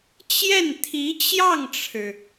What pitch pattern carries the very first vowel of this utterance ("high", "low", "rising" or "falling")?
falling